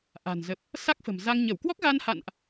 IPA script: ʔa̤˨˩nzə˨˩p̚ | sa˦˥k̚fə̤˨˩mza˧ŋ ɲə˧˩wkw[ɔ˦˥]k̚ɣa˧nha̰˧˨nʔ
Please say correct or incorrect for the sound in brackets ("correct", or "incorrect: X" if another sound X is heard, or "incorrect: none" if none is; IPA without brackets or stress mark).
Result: correct